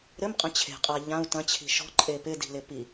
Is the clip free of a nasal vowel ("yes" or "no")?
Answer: no